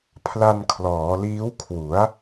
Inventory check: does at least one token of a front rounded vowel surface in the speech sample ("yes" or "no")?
no